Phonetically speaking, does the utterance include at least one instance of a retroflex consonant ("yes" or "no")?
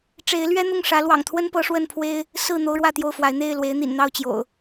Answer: yes